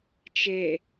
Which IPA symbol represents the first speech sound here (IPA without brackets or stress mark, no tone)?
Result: t͡ʃ